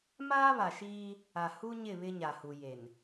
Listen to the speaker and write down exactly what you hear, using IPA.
m aː˦ β a˨ ʃ iː˦ | a˨ h u˦ ɲ ɪ˦˨ β ɪ˦ ɲ a˨ h u˨ j e˨ n

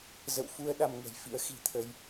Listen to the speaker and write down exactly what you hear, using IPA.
z ə̰˧˨ w f u˧ ə̯ ɗ a˧ m ŋ ə̤˨˩ j f ḭ˧˥ ə̯ x i̤˨˩ t̪ʰ ə˧ j

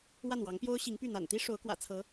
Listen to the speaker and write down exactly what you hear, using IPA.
w a˥˩ n w ɑ˧˥ ŋ p j o˥ ʊ̯ ɕ i˧˥ ŋ p y˥˩ n̪ a̰˨˩ n t̪ i˥ ʂ o˧˥ ʊ̯ k w ä̰˨˩ t͡sʰ ɤ˧˥

